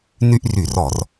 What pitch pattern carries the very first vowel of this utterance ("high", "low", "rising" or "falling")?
high